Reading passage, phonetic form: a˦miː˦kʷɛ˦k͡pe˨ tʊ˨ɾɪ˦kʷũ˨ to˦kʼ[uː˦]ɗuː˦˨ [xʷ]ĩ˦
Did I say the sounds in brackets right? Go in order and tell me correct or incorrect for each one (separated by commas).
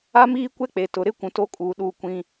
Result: incorrect, incorrect